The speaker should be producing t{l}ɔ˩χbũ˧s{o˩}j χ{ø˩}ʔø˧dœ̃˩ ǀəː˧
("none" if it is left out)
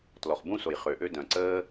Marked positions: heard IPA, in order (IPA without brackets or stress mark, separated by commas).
l, o˩, ø˩